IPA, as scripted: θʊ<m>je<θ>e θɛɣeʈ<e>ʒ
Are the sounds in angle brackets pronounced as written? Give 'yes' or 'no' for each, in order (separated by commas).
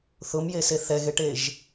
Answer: yes, no, yes